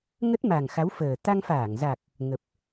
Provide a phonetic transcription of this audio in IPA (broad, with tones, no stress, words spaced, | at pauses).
ŋə˦˥t̚ ma˨˩ŋxa˨˦wfəː˨˩ t̪a˧ŋfaː˧˩ŋza˨˩k̚ | ŋə˨˩p̚